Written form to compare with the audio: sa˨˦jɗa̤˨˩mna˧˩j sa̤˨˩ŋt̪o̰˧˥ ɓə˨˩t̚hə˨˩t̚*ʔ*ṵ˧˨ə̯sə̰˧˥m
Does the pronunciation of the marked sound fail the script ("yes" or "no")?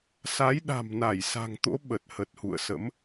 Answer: yes